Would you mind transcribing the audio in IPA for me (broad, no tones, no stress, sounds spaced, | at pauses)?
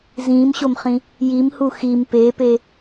z ĩː m ɕ o m χ ĩ | j i m h u x i m p e p e